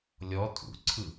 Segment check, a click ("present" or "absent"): present